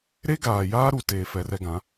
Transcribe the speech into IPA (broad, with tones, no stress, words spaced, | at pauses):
ɾe˦ɡaː˨jaː˦ɾu˨ teː˨fɛ˨rɛ˦ ɡã˨˦